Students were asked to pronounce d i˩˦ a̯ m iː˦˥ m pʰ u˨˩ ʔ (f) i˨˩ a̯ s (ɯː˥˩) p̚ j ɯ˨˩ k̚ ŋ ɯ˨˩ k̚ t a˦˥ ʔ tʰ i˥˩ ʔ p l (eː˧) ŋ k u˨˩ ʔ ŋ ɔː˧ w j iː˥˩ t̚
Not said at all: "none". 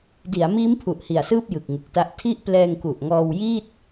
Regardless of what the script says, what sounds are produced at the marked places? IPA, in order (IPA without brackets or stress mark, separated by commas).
h, ɯː˥˩, ɛː˧